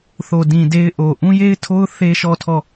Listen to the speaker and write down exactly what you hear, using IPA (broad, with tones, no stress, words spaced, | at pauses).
θo˨dĩ˨de˦ɪ̯ ʔo˨ ʔũ˦je˦ɪ̯tʰo˦ʊ̯ θe˦ʃɔ˦˨ tʰɔ˦˨